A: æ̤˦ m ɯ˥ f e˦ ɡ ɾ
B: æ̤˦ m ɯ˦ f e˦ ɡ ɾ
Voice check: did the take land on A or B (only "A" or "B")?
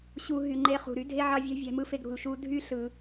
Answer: B